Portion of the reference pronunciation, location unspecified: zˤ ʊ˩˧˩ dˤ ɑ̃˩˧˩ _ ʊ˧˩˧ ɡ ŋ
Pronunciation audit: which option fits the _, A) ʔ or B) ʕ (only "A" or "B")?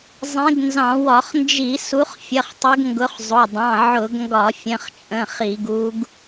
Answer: B